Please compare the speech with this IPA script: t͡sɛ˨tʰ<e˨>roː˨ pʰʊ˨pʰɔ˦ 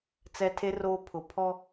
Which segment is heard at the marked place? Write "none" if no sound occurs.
e˨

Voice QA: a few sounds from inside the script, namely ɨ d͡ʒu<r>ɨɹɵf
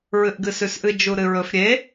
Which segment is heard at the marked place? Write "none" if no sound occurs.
ɾ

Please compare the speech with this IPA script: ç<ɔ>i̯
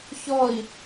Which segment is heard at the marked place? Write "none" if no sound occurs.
ɔ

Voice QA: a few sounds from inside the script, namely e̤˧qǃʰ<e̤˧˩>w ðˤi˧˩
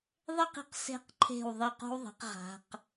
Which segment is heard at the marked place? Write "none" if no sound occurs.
e̤˧˩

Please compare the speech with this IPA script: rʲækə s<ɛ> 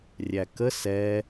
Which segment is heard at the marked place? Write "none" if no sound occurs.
ɛ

